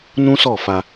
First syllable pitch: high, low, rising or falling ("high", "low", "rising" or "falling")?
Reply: high